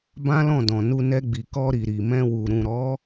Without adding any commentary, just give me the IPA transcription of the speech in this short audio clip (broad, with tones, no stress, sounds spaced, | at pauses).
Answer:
b ã˦ l ɔ̃˦˨ d ɔ̃˨ n u˧ n ɛ˧ ɡ͡b i˨ k ɔ˧ ɾ i˨ ɾ i˨ m ɛ̃˧ w u˨ ɾ ũ˨ ɾ ɔ˨˦